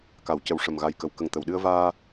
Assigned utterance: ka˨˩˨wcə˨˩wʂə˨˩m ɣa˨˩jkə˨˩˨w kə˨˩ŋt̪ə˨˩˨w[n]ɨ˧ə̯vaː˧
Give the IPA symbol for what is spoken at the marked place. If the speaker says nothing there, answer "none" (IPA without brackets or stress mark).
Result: ɗ